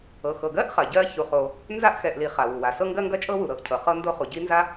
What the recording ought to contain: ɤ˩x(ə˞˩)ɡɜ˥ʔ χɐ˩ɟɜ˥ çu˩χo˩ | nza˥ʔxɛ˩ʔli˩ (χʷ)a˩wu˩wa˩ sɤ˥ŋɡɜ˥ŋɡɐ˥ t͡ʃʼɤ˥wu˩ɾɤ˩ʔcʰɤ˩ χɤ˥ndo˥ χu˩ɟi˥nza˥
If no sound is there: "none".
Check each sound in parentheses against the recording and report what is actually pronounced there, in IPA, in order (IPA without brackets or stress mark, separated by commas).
ɤ˩, χ